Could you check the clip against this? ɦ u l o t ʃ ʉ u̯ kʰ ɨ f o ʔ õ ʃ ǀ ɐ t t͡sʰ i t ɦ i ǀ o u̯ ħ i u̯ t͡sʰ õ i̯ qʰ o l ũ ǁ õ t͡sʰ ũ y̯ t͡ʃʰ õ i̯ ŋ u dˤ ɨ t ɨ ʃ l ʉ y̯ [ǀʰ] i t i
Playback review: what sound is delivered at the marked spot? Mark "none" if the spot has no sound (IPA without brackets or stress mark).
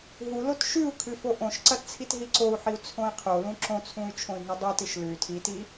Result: tʰ